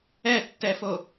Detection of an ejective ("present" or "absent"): absent